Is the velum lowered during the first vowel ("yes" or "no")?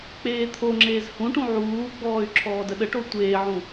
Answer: no